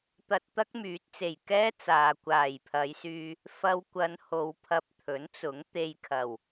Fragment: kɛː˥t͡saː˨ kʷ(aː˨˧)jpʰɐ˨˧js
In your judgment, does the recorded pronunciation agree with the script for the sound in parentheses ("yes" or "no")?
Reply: no